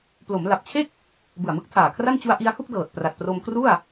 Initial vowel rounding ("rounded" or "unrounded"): rounded